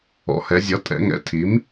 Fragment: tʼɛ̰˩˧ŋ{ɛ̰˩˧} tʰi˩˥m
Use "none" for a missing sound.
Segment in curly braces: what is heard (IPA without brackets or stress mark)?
ɛ̰˩˧